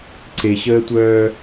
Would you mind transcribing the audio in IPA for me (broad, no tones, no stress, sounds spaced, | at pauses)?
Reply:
ǀ e ɕ əː tʷ œː